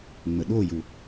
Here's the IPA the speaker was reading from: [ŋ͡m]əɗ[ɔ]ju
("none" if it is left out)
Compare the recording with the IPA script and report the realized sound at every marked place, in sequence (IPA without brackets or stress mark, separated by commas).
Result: ŋ͡m, o